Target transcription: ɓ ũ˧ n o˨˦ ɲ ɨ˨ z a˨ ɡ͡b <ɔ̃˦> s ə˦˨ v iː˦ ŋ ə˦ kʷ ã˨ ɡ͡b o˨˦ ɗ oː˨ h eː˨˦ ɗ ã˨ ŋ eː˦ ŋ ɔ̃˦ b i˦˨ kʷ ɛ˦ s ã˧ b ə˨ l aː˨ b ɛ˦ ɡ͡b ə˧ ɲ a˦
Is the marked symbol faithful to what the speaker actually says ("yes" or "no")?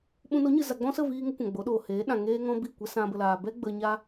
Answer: yes